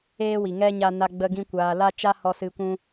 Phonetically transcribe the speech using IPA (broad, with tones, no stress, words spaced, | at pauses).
eː˦wi˨ŋɛ˦ ɲa˧na˧ ɡ͡bə˧ɡĩ˧kʷaː˨la˦ t͡ʃa˦hɔ˧sɨ˧ kʷũ˧